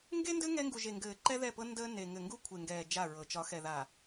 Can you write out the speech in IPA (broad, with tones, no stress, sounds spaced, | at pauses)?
ŋ ɡ e˦ n d ɘ˦ ŋ ɛ˦ ŋ ɡ u˨ ʒ e˨ ŋ ɡ ɘː˨ ǃ ɛ˦ ð ɛ˦˨ p ɤ˦ n d əː˦ n e˨ ŋ ɘ˨ ŋ ɡ u˦ kʷʰ e˨ ŋ ɡ ɛː˨ d͡ʒ a˦˨ ɹ ɤ˨ t͡ʃ ɒ˨˦ x ɛ˨ ð a˨